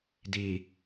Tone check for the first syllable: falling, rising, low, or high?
low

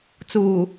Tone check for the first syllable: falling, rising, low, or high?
low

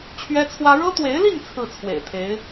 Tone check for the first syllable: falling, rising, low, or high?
high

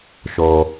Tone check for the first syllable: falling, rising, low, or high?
low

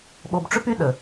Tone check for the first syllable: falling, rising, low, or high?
low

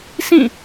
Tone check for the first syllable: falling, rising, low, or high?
falling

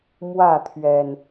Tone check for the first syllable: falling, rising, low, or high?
falling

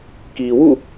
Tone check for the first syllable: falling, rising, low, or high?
low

